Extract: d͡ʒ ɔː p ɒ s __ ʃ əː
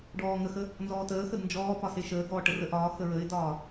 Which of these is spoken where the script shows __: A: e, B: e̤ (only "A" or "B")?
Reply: A